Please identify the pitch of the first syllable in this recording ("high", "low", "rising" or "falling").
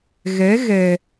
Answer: rising